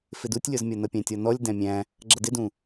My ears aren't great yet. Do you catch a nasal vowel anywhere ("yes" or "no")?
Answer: yes